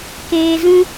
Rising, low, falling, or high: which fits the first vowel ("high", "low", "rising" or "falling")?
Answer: low